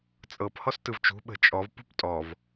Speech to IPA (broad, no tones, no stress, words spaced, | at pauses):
t͡sʼɤp hɔstɯvt͡ʃṳ ɓə̤t͡ʃʼɔv pṳptʼɔv